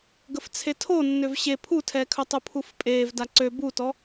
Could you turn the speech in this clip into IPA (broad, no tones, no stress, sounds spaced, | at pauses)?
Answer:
ɡ ə f t͡sʰ e tʰ o nː ø v ɕ e pʰ u tʰ ɛː kʰ œ tˤ u pʰ u f pʼ eː v d a ǀ ø b u t ɔ